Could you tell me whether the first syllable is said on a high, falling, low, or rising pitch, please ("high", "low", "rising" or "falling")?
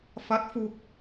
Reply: rising